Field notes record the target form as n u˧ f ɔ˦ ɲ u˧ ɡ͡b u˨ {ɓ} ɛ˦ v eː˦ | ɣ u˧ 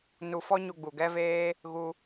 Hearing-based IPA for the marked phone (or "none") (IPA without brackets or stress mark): ɡ